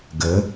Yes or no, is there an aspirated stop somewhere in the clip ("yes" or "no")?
no